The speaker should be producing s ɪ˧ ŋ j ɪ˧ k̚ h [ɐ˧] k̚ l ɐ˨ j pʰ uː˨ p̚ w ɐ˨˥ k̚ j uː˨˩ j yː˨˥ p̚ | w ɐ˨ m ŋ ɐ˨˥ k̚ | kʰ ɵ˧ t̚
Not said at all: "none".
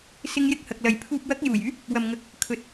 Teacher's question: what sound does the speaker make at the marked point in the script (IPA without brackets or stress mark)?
ɐ˨